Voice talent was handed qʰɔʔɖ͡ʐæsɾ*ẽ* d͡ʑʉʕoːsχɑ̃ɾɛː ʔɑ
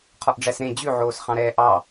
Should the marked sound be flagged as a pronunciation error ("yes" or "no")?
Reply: no